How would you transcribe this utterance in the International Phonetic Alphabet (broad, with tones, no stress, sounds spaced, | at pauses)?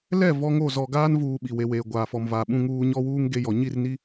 l ɛ˦˨ v ɔ˦ ŋ o˦˨ z ɔ˨ ɡ aː˦ n v uː˨ ɓ i˨ w e˨ w eː˨ ɡʷ aː˨ f ɔ˨ m v aː˨ ɓ ũ˦ ŋ uː˦ ɲ ɔ˦ w uː˦ ŋ ɡ e˦ j ɔ˨ ɲ i˦˨ r n i˦